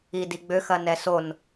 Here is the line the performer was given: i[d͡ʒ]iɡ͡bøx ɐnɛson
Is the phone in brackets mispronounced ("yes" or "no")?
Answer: yes